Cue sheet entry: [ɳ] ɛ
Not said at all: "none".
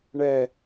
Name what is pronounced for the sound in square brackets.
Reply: ɳ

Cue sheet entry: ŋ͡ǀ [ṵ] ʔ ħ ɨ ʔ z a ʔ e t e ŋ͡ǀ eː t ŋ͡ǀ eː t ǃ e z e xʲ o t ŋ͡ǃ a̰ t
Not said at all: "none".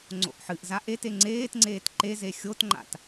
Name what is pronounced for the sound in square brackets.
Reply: o̰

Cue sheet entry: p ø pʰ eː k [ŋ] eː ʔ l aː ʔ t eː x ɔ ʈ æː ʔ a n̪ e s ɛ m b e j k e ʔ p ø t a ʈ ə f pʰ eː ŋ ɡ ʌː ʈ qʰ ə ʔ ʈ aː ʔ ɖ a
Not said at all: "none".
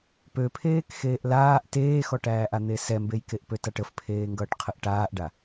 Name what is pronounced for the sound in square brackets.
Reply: x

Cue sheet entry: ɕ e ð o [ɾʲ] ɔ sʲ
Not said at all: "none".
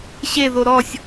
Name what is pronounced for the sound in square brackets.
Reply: ɾ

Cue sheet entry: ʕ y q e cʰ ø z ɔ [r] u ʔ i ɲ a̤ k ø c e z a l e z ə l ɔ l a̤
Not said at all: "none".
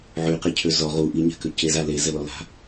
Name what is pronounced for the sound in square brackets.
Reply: ʁ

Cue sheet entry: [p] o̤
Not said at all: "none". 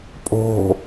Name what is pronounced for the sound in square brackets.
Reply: pʼ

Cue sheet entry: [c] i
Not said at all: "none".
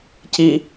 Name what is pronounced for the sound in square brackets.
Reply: c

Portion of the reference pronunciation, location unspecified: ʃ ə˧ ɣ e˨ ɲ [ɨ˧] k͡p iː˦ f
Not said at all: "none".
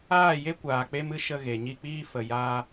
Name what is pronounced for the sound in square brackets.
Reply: i˧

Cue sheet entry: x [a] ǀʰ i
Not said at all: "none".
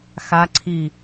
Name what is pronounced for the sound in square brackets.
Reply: a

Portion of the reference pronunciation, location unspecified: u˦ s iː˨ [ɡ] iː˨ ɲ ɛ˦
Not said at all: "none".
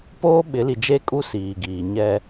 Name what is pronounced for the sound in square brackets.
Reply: ɡ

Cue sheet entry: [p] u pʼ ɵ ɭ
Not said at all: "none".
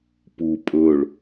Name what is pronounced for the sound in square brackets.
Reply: p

